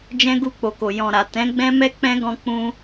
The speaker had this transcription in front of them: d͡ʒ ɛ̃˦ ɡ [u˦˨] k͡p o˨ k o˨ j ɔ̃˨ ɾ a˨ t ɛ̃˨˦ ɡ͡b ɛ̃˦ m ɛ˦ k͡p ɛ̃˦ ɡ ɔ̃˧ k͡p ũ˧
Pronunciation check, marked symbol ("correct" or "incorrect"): correct